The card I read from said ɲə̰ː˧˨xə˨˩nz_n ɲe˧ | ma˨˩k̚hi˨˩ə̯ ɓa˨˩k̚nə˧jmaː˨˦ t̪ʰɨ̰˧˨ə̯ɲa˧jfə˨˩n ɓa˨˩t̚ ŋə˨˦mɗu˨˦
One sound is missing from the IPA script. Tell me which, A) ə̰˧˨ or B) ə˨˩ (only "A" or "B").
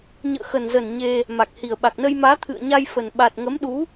B